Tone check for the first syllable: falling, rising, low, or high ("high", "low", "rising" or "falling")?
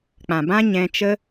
low